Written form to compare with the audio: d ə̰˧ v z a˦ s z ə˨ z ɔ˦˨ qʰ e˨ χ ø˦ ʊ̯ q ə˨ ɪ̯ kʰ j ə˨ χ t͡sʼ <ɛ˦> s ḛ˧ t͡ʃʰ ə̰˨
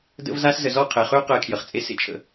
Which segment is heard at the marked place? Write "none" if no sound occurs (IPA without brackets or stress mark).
e˦